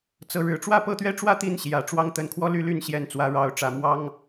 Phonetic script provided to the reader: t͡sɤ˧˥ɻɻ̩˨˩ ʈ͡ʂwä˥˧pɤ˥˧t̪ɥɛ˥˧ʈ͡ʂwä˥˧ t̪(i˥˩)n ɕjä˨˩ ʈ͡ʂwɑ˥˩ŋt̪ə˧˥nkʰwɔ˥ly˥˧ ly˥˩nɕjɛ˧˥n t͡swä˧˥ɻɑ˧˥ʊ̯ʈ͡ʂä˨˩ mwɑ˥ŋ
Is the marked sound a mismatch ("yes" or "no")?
no